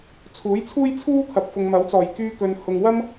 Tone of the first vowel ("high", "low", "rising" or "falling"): rising